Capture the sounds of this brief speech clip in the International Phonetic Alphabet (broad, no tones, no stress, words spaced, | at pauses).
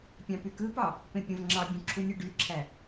pʲɑ̃pykɯpɑ | pẽpʲõvŋ͡ǁɑbʲũ ǁʰunʲoɖyǁʰæ